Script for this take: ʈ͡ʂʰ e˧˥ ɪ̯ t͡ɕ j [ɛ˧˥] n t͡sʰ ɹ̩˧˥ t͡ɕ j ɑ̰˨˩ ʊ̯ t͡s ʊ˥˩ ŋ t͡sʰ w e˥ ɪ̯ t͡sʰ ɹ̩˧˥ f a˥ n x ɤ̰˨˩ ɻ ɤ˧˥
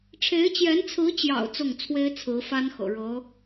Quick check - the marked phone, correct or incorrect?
correct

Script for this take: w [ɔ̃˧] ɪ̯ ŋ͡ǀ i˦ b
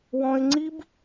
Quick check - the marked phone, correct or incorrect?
correct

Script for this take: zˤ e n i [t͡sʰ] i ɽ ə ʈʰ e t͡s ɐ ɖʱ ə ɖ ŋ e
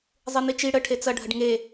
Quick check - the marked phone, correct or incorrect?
incorrect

